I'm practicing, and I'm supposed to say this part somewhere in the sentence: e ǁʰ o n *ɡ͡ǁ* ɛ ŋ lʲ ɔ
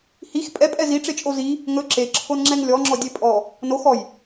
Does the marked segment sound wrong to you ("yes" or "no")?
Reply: yes